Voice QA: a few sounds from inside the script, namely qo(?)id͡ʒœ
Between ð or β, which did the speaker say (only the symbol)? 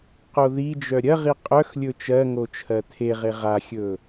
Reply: ð